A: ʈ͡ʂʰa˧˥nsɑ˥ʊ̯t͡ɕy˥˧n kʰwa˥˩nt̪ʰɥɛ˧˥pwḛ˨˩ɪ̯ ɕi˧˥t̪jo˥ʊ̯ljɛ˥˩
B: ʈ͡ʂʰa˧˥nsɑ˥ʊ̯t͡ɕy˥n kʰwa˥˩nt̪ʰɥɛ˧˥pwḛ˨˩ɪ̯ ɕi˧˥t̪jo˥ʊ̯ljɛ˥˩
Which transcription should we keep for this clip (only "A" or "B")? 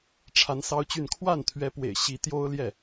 A